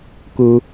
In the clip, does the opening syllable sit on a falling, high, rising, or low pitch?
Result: high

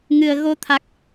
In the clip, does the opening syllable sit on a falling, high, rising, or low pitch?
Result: low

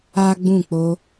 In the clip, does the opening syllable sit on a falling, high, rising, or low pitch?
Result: high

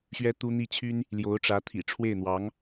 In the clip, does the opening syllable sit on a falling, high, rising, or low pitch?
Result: high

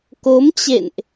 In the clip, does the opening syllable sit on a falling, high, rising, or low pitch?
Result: rising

